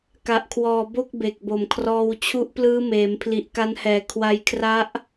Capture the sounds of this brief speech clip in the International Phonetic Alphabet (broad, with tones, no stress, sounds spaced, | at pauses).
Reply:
k a˨˩ ʔ kʰ w ɔː˨˩ b o˥˩ k̚ b e˨˩ k̚ b o˨˩ m kʰ r ɔː˧ w t͡ɕʰ u˦˥ ʔ p l ɯː˦˥ m eː˩˦ m pʰ l i˨˩ ʔ k a˧ n h ɛː˨˩ kʰ w a˧ j kʰ r a˦˥ ʔ